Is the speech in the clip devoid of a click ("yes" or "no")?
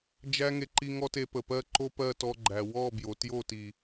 no